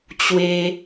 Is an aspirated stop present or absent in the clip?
absent